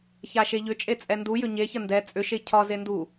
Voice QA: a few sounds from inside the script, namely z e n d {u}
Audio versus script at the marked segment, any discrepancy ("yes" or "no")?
no